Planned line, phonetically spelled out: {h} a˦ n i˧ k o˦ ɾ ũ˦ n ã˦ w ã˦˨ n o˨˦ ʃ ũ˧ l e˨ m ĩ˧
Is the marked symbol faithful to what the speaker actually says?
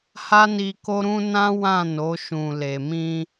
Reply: yes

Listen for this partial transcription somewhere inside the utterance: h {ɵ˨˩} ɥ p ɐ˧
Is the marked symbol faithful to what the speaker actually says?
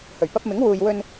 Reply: yes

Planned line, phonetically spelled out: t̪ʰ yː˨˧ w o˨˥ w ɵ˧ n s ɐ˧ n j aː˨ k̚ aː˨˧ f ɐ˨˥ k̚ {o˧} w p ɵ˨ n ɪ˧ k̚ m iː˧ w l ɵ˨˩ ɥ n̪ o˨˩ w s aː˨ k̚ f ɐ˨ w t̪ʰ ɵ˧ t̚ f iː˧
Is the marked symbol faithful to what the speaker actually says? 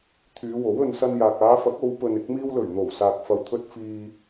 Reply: no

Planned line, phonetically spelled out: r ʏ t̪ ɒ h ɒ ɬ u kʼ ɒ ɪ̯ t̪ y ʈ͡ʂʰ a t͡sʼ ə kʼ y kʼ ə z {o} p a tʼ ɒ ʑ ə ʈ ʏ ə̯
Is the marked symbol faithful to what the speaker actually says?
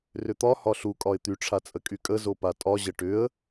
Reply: yes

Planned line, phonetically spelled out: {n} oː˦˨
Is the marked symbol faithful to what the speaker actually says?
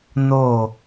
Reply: yes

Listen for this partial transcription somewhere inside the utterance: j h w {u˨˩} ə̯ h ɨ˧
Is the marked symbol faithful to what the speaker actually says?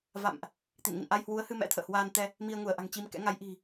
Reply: no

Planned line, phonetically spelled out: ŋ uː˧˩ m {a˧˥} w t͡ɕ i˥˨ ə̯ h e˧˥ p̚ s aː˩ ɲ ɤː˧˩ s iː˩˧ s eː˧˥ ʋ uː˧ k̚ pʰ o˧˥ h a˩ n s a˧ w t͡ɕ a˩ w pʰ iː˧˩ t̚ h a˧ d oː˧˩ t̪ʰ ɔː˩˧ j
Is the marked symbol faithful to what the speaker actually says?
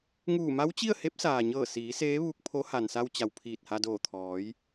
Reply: yes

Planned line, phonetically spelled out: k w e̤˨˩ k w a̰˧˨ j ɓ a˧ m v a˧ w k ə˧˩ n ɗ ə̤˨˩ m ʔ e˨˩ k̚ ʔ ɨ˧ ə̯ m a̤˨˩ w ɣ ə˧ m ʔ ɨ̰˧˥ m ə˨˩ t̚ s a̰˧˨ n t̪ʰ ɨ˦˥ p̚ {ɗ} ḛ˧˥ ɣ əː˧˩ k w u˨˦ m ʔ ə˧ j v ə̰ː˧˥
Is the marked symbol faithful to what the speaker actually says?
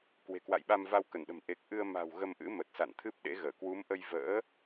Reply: yes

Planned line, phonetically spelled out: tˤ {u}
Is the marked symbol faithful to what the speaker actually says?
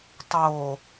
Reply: no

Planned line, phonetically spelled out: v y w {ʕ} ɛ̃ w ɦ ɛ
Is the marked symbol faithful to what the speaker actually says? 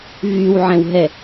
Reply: yes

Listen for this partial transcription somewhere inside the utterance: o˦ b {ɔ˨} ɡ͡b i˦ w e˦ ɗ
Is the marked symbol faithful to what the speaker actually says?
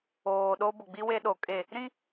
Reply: no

